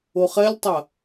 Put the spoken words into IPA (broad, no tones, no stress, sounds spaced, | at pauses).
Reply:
o χ ɛ lʲ tˤ ɐ